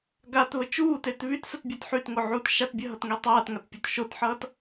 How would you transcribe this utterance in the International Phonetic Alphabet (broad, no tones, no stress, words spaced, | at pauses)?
ɡatβə t͡ʃuːtet βytsətbʲɜt ħytŋoʕuːt ʃatbʲɜɦʌtŋe tˤaːtŋatpʲot ʃotħʌːt